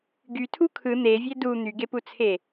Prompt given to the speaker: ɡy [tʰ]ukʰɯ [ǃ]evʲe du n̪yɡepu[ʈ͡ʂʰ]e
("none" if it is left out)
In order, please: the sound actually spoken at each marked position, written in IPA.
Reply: tʰ, n̪, t͡sʰ

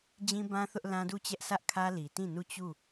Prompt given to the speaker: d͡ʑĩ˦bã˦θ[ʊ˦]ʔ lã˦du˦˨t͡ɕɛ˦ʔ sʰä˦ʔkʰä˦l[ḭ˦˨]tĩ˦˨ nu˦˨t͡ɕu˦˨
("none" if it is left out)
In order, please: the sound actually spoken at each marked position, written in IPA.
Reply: ʊ˦, i˨

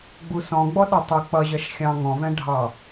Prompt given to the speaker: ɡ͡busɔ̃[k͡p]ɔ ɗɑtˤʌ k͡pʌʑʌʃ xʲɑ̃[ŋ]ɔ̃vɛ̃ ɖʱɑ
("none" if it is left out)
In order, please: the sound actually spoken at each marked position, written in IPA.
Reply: ɡ͡b, ŋ

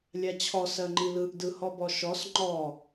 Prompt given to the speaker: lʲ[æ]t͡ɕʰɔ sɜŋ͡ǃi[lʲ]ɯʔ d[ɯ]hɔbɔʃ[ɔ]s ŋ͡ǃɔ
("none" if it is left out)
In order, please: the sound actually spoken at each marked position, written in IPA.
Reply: a, l, ɯ, ɔ

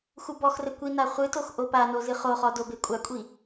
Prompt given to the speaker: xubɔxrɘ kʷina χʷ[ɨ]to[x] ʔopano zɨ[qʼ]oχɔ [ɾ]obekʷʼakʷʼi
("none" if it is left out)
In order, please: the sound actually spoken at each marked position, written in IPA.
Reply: ɨ, x, χ, d

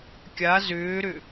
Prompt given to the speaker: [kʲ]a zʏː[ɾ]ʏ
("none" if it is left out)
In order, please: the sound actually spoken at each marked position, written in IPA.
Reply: kʲ, ɾ

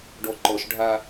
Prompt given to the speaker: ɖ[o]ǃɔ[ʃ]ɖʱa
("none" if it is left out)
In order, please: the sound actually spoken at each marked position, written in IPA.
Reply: ɔ, ʃ

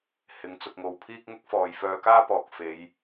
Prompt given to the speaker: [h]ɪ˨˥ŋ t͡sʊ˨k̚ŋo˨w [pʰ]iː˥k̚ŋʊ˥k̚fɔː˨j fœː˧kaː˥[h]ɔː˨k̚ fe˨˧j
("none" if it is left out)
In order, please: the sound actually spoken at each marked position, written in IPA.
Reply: h, pʰ, p

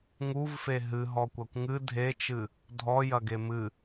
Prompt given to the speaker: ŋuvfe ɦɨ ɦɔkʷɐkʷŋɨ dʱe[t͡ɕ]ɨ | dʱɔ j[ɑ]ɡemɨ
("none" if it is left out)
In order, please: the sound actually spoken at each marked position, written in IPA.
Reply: t͡ʃ, ɐ

